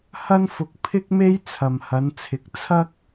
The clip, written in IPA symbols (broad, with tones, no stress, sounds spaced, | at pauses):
h ɐ˥ n f ʊ˧ k̚ pʰ ɪ˥ k̚ m e˥ j t͡sʰ ɐ˨ m h ɐ˨˧ n t͡sʰ ɪ˨˥ k̚ t͡sʰ ɐ˥ k̚